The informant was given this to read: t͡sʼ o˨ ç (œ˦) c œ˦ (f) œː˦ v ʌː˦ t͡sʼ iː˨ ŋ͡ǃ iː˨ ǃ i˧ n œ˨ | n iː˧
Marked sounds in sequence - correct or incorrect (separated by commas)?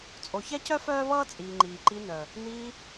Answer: incorrect, correct